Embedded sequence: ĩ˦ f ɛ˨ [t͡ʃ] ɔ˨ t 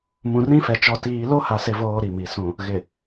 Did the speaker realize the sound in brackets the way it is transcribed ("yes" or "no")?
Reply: yes